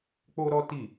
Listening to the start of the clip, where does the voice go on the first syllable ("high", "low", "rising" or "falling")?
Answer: high